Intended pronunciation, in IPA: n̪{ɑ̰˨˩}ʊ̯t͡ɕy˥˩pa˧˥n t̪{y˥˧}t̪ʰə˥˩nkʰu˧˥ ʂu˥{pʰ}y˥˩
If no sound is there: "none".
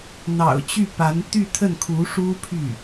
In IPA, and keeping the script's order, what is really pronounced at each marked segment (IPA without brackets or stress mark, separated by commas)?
ɑ̰˨˩, y˥˧, pʰ